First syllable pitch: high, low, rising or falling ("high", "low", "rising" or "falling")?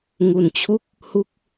low